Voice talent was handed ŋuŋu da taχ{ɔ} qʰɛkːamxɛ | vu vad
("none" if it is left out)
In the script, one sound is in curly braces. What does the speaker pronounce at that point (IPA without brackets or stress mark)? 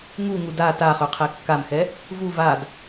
ɵ